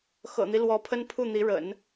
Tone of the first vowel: low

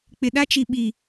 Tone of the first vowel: low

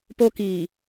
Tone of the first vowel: high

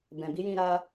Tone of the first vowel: low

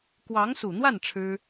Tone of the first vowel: rising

